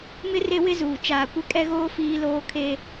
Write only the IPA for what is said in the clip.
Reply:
mɪ˦ re˦wɪ˦zuː˨ t͡ʃaː˨kʷɪ˦˨kʼɛ˦ɣoː˦ fiː˦loː˦kʰe˦

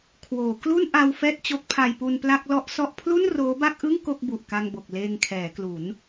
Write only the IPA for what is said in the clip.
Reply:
kʰwoː˩˦klu˥˩nʔa˧w fɛː˥˩t̚t͡ɕo˦˥k̚pʰa˧j pu˧npla˥˩k̚lɔ˥˩ʔsɔ˥˩ʔ pʰlu˥˩n roː˦˥ba˥˩k̚ʔɯ˥˩ŋ ko˥˩k̚bu˨˩ʔka˧ŋbo˨˩k̚ leː˧ŋkʰɛː˩˦klu˩˦n

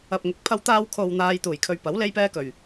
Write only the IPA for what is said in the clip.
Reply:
ɐ˨p̚ŋɪ˨˥k̚ pʰɐ˧wt̪aː˧wkʰo˨w n̪aː˧jt̪uː˨˩j kʰɵ˧ɥpɐ˨˥w le˥jpɛː˥kɵ˨˩ɥ

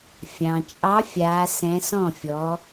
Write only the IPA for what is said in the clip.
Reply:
fʲɑ̃˩t͡ʃʼɑ˨˦ fʲaː˨˦sɛ̃˨˦sɔ̃˥˩fʲɔ˨˦

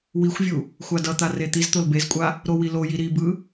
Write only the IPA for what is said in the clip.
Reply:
wixʷvʲu | xʷadʌt̪a ret̪izt̪ol bezkʷʼa | ɾowiloji ɾibɯ

